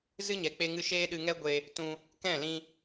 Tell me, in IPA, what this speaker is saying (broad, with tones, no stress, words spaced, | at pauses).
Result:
zɨ˦ɲɛ˨k͡pe˧ ŋɨ˧ʃeː˦ɗɨ˧ŋɛ˦ ɡʷe˧ | tũ˧ | kɛ̃˦˨lĩ˧